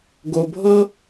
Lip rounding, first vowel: rounded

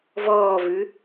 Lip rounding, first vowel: rounded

